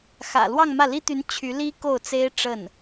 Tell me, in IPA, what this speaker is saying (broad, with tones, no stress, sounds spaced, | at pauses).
x ä̰˨˩ l w ɑ˥˧ ŋ m ä˥˩ l i˥ t̪ y˧˥ n t͡ɕʰ y˧˥ l i˥ k o˥˩ ʊ̯ t͡s e˥ ɪ̯ ʈ͡ʂ ə˥˩ n